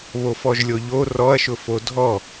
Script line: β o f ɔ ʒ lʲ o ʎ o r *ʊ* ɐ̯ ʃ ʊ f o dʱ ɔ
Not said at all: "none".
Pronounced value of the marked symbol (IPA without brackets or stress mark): ɔ